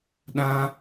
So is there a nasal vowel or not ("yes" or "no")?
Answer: yes